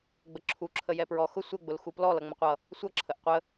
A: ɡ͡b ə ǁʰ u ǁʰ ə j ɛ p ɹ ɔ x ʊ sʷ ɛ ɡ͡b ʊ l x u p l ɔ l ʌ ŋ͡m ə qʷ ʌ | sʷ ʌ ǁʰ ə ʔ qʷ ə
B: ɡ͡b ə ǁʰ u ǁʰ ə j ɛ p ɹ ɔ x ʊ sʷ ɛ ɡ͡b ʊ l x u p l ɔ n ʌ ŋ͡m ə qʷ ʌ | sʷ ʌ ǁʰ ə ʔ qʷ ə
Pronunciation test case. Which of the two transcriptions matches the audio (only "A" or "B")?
A